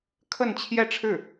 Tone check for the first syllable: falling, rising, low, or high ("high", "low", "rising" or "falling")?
falling